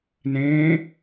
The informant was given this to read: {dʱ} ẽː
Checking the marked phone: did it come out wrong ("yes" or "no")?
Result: yes